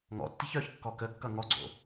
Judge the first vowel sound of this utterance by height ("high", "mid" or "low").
mid